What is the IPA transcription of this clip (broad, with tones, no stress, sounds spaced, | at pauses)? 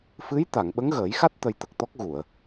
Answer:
f ɨ˧˥ j t̪ a˨˩˨ ŋ ɓ ə˧˥ ŋ ɣ əː˨˩˦ j x a˦˥ t̚ t̪ ə˧ j t̪ ə˨˩ k̚ t̪ ɔ˦˥ k̚ ɣ u˨˩˨ ə̯